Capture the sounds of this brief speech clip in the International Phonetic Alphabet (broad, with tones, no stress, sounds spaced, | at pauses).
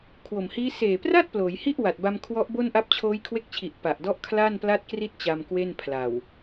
kʰ w o˨˩ m h iː˦˥ s eː˨˩ p r a˥˩ t̚ p l oː˩˦ j h i˥˩ ʔ w a˨˩ t̚ b a˧ m kʰ w ɔ˦˥ ʔ b o˥˩ n ʔ a˦˥ p̚ t͡ɕʰ oː˦˥ j kʰ w e˦˥ k̚ t͡ɕʰ i˨˩ ʔ p a˨˩ ʔ d ɔ˦˥ ʔ kʰ l aː˥˩ n p l aː˥˩ t̚ k r i˥˩ t̚ t͡ɕ a˧ m k w e˥˩ n pʰ l a˨˩ w